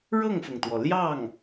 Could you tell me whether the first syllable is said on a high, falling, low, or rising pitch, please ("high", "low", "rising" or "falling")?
falling